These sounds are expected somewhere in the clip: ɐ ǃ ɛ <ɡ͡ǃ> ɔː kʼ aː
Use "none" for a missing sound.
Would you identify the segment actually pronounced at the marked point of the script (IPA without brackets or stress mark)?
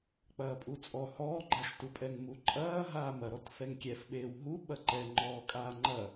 ŋ͡ǃ